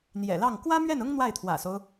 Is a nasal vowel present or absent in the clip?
absent